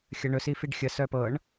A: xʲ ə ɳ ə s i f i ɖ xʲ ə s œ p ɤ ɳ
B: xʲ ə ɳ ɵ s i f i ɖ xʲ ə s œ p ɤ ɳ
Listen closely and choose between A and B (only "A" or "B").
B